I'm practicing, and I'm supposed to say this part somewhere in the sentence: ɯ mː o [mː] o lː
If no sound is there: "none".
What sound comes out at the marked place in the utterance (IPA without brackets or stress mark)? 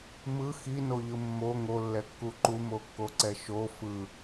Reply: ŋ